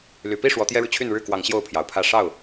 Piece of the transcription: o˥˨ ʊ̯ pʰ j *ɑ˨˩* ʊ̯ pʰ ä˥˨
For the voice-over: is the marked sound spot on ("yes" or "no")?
yes